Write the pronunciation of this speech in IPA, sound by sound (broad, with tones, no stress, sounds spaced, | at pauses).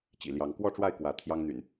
t͡ɕ ḭ˨˩ l j ɑ˨˦ ŋ k w ɔ˥˨ ʈ͡ʂ w a˥˨ ɪ̯ k w ä˨˦ t̪ʰ j ɑ˦ ŋ n̪ y̰˨˩ n